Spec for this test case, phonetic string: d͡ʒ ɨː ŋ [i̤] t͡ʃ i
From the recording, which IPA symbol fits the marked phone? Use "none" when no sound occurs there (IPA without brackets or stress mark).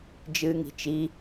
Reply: i̤